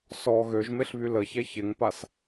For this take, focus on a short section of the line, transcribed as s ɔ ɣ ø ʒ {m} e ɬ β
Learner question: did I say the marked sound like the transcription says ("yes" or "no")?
yes